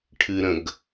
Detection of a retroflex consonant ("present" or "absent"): present